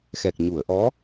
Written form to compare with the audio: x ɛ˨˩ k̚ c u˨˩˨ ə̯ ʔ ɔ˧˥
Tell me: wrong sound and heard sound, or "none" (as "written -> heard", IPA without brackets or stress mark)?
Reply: c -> ɲ